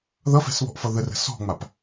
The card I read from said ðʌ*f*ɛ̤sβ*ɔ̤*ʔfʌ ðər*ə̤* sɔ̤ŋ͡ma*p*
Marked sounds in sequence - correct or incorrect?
correct, correct, correct, correct

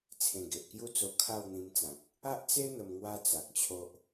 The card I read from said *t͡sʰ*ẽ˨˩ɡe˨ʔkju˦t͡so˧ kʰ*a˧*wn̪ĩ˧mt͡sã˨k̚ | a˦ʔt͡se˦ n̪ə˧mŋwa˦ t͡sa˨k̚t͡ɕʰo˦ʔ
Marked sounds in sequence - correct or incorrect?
correct, incorrect

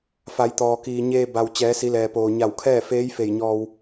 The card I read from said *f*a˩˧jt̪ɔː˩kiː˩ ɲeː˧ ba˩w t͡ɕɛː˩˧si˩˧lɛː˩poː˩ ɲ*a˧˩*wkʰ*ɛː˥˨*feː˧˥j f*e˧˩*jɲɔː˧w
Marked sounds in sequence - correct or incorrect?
correct, correct, correct, correct

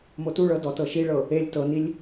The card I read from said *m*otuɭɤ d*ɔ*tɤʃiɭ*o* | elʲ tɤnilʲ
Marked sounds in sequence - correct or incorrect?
correct, correct, incorrect

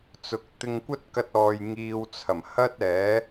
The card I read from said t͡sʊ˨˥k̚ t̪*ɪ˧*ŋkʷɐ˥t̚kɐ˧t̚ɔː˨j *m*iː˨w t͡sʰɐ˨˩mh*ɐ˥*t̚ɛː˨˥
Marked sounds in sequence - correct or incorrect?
correct, incorrect, correct

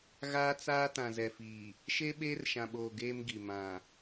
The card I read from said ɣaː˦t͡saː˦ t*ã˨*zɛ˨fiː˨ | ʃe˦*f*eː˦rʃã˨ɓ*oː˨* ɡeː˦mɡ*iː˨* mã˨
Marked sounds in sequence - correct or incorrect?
correct, incorrect, correct, incorrect

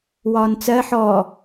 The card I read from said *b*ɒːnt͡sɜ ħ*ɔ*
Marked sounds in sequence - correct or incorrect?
incorrect, correct

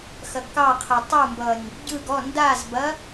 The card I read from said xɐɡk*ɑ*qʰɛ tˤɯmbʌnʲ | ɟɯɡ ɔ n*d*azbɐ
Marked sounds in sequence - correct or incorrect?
correct, correct

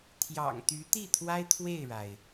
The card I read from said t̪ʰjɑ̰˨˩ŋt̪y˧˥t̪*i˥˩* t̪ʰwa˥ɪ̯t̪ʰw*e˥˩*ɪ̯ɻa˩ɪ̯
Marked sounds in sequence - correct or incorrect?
correct, correct

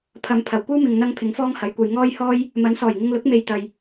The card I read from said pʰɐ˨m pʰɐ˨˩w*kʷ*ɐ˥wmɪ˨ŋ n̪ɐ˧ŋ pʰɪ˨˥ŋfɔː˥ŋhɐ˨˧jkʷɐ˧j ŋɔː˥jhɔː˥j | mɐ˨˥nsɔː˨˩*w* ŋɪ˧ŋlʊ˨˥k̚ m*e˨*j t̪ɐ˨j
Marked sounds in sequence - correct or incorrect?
correct, incorrect, correct

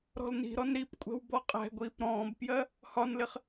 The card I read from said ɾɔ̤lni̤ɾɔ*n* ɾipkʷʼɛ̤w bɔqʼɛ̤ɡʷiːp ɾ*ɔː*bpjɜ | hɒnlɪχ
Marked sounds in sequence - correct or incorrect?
correct, incorrect

